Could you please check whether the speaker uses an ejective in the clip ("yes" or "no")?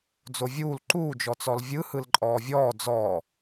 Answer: yes